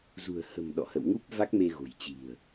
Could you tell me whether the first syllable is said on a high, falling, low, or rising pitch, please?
low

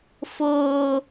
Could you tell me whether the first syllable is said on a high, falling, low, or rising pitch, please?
high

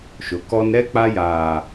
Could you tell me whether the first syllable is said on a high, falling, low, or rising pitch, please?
rising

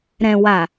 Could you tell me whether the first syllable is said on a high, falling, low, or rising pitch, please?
low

